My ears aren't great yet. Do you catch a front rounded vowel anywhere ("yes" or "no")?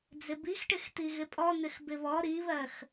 no